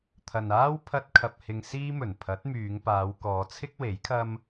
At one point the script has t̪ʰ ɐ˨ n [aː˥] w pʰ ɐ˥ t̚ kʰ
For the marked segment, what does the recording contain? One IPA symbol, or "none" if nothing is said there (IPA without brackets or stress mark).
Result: aː˥